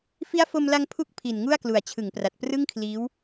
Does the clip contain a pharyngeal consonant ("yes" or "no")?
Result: no